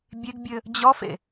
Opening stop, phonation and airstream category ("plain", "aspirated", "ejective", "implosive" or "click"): plain